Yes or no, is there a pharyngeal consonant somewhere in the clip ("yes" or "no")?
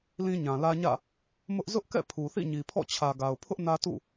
no